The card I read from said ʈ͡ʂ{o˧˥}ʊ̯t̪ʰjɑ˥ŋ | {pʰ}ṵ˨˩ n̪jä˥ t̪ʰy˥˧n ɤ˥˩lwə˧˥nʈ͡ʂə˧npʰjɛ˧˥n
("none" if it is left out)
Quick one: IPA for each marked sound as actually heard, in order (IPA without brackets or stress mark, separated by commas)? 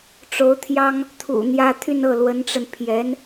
o˧˥, t̪ʰ